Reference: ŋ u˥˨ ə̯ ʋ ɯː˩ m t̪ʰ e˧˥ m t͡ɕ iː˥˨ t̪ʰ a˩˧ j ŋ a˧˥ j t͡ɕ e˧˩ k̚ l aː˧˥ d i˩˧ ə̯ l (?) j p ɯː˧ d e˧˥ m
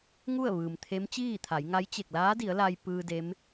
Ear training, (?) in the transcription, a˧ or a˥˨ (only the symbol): a˧